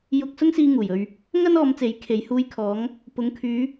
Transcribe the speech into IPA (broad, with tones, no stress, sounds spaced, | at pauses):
j ʊ˧ k̚ s ʊ˥ ŋ s iː˧ ŋ uː˨˩ j ɵ˧ ɥ | ŋ ɐ˥ n ɔː˨˧ m t͡s e˨˥ j kʰ e˨ j h uː˧ j kʰ ɔː˨˧ ŋ | p ʊ˨˧ ŋ kʰ yː˨˧